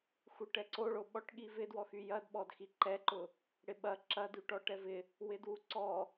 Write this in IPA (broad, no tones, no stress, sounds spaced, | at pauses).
x u ʈ ɛ ǀ o ɭ o ɓ ɔ ʈ ɠ i v ɪ d w ɔ x y j ɐ d ɓ ɔ d x i ǃ ɛ ǃ ʊ | ɽ ɪ ɓ ɐ ǁ ɐ d y ʈ ɔ ʈ ɛ v ɪ | w ɪ d w u ǀ ɔ